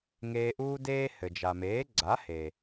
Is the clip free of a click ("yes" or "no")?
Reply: no